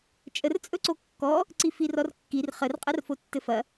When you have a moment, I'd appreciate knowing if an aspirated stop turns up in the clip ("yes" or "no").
no